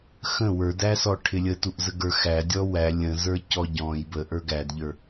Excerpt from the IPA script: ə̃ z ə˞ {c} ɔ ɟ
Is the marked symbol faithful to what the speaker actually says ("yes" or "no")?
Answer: yes